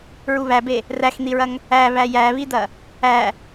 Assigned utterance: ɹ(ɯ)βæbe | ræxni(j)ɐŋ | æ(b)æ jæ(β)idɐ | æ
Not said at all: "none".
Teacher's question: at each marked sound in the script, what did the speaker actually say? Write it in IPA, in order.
u, ɹ, β, β

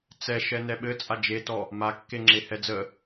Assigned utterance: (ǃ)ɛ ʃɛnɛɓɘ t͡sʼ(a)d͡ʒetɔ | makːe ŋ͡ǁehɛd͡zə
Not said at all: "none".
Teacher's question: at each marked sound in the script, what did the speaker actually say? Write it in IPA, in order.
t͡s, a

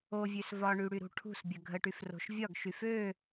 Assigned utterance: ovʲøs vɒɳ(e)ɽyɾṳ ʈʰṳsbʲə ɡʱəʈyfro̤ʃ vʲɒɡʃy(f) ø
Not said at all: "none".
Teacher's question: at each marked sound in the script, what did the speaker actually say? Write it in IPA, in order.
y, f

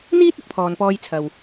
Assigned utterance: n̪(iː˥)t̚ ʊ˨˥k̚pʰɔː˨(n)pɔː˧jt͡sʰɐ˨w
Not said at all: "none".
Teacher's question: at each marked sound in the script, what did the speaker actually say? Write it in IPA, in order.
iː˥, n

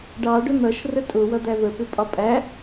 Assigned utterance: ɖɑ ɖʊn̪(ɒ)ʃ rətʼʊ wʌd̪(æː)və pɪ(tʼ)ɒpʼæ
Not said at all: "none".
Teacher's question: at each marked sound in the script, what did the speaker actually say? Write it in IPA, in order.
ʌ, æ, pʼ

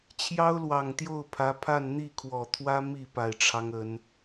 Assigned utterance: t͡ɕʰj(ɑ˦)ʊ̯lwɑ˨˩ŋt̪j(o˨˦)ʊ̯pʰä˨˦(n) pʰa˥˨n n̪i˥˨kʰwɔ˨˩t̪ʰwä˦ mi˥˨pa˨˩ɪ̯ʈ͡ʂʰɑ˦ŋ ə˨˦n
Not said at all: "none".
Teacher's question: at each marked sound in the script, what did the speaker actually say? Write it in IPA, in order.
ɑ˦, o˥˨, none

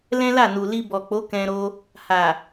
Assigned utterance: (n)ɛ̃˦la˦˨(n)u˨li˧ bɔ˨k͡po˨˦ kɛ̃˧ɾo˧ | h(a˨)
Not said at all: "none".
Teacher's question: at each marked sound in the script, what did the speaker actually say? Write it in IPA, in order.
l, n, a˨

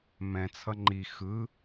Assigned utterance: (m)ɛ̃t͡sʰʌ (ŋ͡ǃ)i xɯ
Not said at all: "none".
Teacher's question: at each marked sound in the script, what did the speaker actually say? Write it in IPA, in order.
m, ŋ͡ǃ

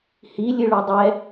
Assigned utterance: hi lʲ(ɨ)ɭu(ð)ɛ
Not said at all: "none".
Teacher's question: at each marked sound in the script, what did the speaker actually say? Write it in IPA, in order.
ɨ, dˤ

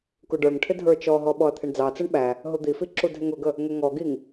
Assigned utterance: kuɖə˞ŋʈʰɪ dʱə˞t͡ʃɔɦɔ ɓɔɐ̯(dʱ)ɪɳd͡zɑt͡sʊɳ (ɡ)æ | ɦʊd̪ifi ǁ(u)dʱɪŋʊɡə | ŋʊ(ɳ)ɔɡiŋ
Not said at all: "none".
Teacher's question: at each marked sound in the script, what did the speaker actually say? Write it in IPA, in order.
t̪ʰ, ɓ, u, ŋ

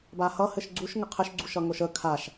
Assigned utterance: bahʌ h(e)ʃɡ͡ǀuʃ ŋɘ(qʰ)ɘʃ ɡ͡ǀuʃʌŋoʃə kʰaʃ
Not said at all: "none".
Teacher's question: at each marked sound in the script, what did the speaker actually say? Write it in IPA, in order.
ɘ, qʰ

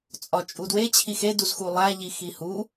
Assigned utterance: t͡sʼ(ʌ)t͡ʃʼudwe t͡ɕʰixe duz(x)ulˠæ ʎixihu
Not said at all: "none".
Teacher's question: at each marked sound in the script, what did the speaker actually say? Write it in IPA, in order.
ɒ, x

